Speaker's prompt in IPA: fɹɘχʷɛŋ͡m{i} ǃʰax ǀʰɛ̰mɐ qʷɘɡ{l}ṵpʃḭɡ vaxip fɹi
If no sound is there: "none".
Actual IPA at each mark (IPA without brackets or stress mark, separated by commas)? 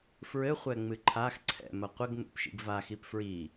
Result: ɨ, n